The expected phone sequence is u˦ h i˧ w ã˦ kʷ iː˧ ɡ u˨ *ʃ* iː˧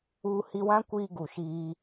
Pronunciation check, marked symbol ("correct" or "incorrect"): correct